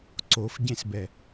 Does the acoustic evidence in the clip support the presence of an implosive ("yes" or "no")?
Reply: no